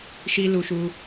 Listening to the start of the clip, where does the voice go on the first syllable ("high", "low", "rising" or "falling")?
high